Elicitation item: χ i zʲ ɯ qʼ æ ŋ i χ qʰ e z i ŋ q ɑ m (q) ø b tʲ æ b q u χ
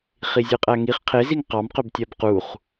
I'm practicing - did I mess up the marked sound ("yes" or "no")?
no